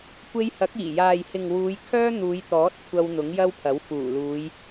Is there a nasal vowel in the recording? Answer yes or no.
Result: no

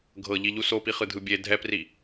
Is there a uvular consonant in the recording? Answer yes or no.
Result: yes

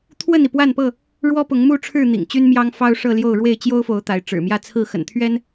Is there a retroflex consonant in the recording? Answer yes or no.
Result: yes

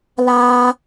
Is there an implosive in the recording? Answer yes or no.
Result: no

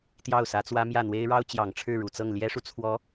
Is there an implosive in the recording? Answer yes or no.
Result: no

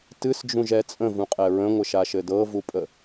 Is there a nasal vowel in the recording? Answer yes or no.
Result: yes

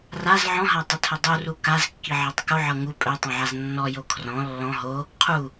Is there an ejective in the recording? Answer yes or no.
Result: yes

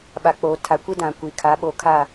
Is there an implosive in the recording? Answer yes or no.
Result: yes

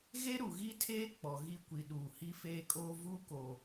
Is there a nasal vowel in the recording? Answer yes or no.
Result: no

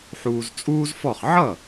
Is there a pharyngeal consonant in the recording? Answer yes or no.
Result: yes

